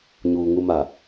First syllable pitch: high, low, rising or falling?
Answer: low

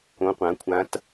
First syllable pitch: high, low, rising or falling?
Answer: rising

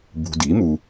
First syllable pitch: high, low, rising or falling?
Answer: low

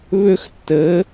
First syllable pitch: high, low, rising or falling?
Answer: high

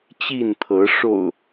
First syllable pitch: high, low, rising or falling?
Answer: falling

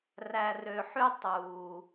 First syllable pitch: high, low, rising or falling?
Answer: low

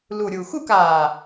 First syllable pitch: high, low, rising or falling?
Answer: low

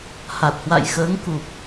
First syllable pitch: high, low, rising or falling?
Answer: low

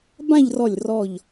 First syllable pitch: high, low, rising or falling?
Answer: falling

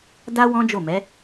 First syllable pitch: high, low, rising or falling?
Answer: high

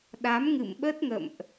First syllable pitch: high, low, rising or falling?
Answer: rising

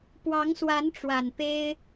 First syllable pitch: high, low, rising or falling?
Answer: rising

